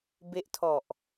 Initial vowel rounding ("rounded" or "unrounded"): unrounded